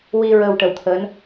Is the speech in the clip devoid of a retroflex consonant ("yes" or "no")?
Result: no